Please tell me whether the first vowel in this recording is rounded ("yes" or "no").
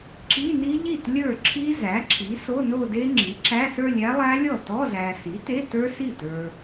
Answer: no